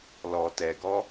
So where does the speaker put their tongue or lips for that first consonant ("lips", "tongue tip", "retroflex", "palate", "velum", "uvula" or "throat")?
tongue tip